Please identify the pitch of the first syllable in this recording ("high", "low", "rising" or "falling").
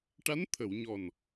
rising